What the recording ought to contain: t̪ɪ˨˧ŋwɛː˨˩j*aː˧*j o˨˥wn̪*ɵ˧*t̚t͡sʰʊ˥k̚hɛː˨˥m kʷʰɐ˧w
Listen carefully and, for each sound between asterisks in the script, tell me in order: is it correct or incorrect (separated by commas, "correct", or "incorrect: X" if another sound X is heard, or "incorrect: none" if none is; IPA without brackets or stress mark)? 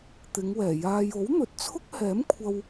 correct, incorrect: ɵ˨